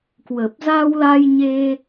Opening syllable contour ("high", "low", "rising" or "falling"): low